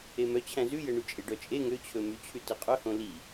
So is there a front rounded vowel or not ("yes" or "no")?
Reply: yes